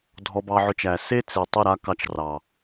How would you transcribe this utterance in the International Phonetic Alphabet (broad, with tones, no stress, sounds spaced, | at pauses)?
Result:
dʱ ɔ˧ b ɑ˧ ʕ ʊ˧ t͡ʃ æ˨ s e˦ t͡s e˨ tˤ ʊ˦˨ ɾ a˦ k ɑ˧ t͡ʃ r ɑ˨